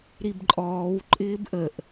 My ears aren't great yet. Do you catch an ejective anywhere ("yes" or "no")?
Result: yes